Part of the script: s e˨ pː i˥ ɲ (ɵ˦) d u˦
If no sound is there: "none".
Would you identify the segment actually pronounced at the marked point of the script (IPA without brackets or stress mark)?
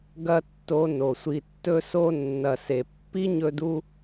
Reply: ɵ˦